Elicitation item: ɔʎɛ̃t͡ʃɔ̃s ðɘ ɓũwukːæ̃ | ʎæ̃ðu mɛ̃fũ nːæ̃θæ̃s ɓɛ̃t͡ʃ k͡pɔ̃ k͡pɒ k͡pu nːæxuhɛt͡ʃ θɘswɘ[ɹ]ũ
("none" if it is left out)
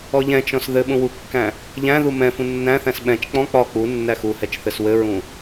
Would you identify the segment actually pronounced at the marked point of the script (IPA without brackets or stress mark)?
ɹ